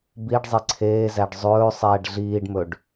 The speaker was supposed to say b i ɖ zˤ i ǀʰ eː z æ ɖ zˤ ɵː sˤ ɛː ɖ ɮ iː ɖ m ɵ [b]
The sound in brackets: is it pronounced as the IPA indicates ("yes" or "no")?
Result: no